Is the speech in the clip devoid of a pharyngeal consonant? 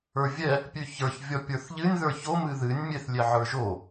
no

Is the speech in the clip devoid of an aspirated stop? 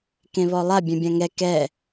yes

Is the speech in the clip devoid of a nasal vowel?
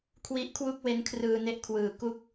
yes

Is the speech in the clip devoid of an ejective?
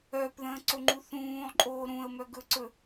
no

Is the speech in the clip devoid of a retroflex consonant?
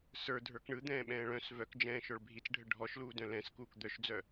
no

